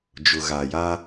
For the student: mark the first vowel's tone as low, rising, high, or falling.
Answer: low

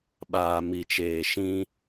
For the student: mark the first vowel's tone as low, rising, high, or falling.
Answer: low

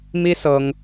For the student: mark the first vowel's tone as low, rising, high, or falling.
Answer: high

